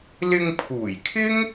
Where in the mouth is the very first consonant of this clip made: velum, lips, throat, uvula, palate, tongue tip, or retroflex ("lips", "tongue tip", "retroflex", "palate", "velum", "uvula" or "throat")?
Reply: tongue tip